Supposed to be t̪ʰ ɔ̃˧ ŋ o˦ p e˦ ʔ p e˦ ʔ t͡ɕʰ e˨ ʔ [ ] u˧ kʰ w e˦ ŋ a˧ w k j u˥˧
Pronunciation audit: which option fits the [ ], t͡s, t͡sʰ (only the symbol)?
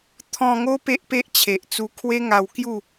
t͡s